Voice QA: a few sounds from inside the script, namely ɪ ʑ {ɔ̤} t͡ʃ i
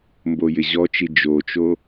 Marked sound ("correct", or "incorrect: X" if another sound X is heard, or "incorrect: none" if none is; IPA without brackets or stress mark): incorrect: ɔ